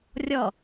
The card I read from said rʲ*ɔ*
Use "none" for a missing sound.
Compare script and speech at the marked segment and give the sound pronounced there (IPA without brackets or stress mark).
ɔ